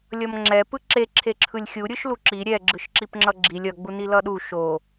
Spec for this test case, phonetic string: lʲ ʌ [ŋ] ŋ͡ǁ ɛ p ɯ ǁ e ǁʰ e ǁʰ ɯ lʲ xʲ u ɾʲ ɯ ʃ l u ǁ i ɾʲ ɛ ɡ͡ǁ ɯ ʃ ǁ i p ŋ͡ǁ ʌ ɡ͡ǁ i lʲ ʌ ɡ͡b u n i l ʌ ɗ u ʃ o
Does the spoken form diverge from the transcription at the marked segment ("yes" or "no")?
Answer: yes